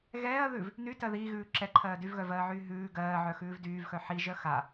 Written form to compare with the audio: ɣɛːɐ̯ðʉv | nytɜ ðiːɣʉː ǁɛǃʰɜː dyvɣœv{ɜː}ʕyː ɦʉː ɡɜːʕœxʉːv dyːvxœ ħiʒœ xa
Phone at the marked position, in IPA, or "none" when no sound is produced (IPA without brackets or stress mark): ɜː